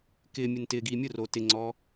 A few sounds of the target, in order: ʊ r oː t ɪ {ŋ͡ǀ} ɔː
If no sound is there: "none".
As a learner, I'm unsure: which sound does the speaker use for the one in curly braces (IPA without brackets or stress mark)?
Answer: ŋ͡ǀ